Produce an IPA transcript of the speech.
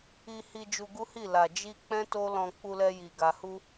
i˧ h i˧ d͡ʒ u˧ ɡ u˦ h i˦˨ l a˨ d͡ʒ i˧ k͡p ɛ̃˦ t o˦ l ɔ̃˧ k͡p u˧ l ɛ˧ j i˨ ɡ a˨ h u˧

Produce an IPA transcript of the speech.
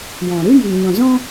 j ɔ̃˨ ɾ ɨ˦ j i˨ ɲ ɔ̃˨ z ɔ̃˦

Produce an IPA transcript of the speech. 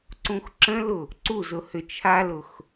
ǀ ũ x ǁ ə̃ l ʊ | ǀ u z ʊ h ʏ t͡ʃʰ a l ʊ x

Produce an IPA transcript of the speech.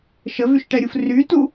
ʃ ə v y ʃ ʈ ɛ ɾʲ u f r y t u

